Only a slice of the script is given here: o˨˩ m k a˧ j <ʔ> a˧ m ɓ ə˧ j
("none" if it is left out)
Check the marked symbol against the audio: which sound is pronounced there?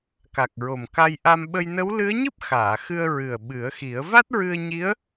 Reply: ʔ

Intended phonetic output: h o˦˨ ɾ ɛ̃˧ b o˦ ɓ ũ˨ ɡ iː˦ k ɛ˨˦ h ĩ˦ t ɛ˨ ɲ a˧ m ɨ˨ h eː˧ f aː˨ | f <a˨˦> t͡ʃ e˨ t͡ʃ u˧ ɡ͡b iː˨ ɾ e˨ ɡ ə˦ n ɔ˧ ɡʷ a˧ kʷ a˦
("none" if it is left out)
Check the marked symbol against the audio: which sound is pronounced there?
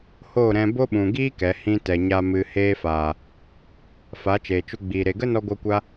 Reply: a˨˦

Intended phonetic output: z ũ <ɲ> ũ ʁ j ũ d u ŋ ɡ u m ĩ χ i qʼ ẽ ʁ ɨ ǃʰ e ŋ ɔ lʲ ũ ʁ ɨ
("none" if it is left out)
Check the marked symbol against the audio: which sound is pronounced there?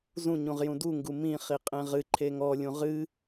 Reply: ɲ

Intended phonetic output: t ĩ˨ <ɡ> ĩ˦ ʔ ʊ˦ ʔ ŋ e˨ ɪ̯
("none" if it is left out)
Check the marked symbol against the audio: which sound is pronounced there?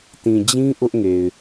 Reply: d͡ʑ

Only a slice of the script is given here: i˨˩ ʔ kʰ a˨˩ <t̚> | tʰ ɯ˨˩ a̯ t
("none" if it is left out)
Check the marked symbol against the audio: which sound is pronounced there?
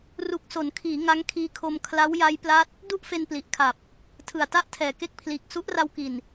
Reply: p̚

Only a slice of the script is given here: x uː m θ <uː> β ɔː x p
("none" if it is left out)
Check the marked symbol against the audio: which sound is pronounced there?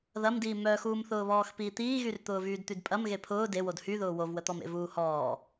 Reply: ʊː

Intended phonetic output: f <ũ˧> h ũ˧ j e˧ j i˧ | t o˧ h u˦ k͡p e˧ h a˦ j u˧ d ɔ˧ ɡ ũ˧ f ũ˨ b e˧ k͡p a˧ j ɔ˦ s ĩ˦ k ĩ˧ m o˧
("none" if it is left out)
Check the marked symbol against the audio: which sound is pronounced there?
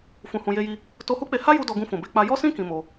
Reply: ũ˧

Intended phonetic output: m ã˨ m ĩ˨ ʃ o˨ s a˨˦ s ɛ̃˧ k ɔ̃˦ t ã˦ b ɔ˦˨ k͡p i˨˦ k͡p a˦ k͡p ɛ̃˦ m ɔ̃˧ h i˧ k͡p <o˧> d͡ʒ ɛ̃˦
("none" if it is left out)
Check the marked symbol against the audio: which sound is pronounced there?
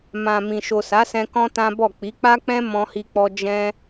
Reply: ɔ˧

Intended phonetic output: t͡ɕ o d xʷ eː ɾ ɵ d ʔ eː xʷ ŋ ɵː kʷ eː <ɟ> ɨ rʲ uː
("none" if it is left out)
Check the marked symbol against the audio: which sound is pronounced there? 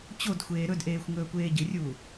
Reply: ɟ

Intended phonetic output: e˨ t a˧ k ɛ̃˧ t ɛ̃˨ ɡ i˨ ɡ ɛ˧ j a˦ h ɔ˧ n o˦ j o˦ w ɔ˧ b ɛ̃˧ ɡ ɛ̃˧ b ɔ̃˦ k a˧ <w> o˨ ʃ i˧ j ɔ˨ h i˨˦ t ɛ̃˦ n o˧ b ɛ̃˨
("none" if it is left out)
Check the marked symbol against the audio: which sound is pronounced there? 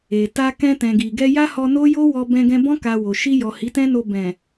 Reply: w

